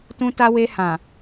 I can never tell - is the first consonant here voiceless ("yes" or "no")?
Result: yes